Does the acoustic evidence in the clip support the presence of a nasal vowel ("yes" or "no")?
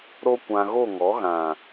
yes